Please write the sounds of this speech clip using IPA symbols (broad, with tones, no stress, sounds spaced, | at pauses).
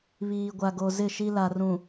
β iː˨ ɡʷ a˨ ɡ o˨ z ɪ˦˨ ʃ i˦ l a˨ r ũ˨